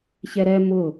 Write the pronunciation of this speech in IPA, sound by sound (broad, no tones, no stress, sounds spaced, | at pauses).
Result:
ç ɛ ɾ ɛ m ʊ